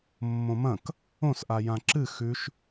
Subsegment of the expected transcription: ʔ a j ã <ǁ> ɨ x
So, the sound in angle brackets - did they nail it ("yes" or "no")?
yes